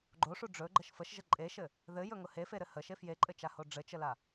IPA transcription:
ɡ͡ǃoʂu ɖ͡ʐɵɡ͡ǃəʃ fəʃʒə ǃʼeʃɘ | ðɘjɵŋʊ hefeɾɘ həʃe fjeǃʼɘt͡ʃaho ɖ͡ʐɘt͡ʃəla

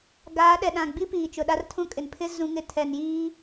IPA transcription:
ɡaː˨˦ɗɛ˨ ɗã˨ɡ͡bi˦ piː˨t͡ʃʊ˨ɗa˦rtʰũ˦ kʼɪ˨npʰɪ˦ zũ˦ŋɪ˦ tʰɛ˨njiː˦

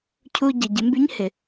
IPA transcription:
cʰu˧ɟə˩ ɟɪ˩˧mby˧˥ɲhɪ˩

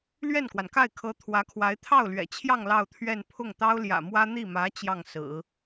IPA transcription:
lɥɛ˥˩nkwa˩nka˥˩ɪ̯kʰɤ˧˥ t̪ʰwä˧˥kʰwa˧˥ɪ̯ t̪ʰɑ˥˩ʊ̯lɥɛ̰˨˩t͡ɕʰjɑ˥˧ŋ lɑ˥˧ʊ̯t̪ʰɥɛ˥˧n pʰʊ˥˩ŋ t̪ɑ˥ʊ̯ljä̰˨˩mwä˥ n̪i˥˩mä˧˥ t͡ɕjɑ˥˩ŋ sɹ̩˨˩˦

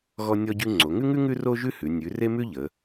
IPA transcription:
ɣɔ˥nʲɔ˥ɟʉ˥ ŋ͡ǀo˩˧ŋʉ˥ŋʉ˥ ŋʉ˥ro˥ʒʉ˥hʉ˩˧ nʲʉ˩˧ re˥mʉ˥ʎə˩˧

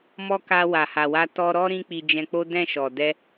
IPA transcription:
mɔ˦ka˧ wa˨ha˨wa˧ tɔ˧ɾɔ˦ ɾĩ˦k͡pi˧d͡ʒɛ̃˧k͡po˦ dɛ̃˦˨ʃɔ˨dɛ˧

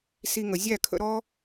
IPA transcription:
si˧ŋə˨ zʲæ˦˨kʰə̰˧ɾɔ˦

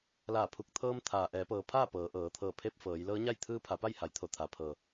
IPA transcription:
laː˧˩pʰu˧˩k̚t̪ʰɤː˧m t̪ʰaː˩ʔɛː˩˧pɤː˩˧pʰaː˥˨ pɤː˩˧ ʔɤː˩˧t̪ʰɤː˧˩ pʰe˧p̚fɤː˩˧jlɤː˧˥ɲa˥˨j t̪ʰɯː˧pʰa˩˧pa˥˨jha˩j t̪ʰo˧˩t̪ʰaː˩pʰɤː˩

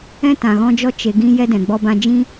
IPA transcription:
ɛ̃˦tã˨ ɣɔ̃˧d͡ʒɔ˧ t͡ʃe˨ɡĩ˧ jɛ˦dɛ̃˨ ɡ͡bɔ˧bã˧d͡ʒĩ˦

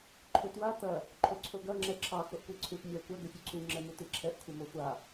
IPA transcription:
ǃʰʏtwa tɐ | ǃʰoǀʰoɡɐ ŋ͡ǁɛǁʰɑ xoʔkʷiǀʰut mʲɑkʷɐ ɡʏfʲuǀʰu ŋ͡ǁɛmutiǁʰɛʔ kʷʰɛmoxʷa

